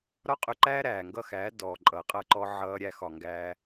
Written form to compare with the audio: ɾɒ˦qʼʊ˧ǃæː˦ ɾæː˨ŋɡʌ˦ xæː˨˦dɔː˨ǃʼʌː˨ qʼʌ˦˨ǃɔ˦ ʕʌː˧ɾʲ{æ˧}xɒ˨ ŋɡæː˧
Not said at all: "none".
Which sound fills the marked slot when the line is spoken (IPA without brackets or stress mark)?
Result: æ˧